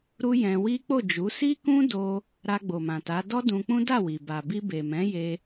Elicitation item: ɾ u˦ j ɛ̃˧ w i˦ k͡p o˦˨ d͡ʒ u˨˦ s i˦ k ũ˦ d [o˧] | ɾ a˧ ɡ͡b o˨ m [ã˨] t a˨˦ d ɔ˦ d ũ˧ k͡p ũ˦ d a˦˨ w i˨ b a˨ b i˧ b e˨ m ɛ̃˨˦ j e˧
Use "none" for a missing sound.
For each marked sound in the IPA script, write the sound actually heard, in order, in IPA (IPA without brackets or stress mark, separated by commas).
o˧, ã˨